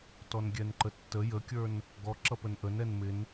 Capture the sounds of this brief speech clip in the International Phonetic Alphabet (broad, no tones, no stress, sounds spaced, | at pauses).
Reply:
t ɔ n ɡʲ ɛ n ǃ ə tː ə j ə kʲ ə˞ n | ɡ ɔ ǁ ʌ p ə n ʔ ə n ɛ n m ɪ n